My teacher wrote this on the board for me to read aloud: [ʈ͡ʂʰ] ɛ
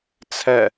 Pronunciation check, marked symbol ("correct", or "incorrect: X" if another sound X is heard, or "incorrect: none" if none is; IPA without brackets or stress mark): incorrect: t͡sʰ